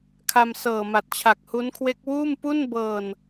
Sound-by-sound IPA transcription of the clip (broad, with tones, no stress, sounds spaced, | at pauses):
kʰ a˧ m s ɤː˨˩ m a˨˩ t̚ t͡ɕʰ a˨˩ k̚ h u˦˥ n kʰ w e˦˥ k̚ w uː˥˩ m p u˥˩ n b ɤː˨˩ n